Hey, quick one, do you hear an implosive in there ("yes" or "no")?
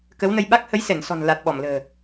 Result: yes